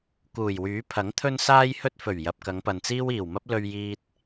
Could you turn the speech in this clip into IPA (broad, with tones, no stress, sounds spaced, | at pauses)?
k uː˨˩ j w yː˨˥ pʰ ɐ˨˥ ŋ t̪ʰ ɵ˥ n s aː˥ j h ɵ˥ t̚ f ɵ˨˩ ɥ j ɐ˨ p̚ k ɐ˨˧ ŋ p ɐ˨ n t͡s iː˥ w iː˨˩ w m ɐ˥ p̚ l ɵ˧ ɥ j iː˧ t̚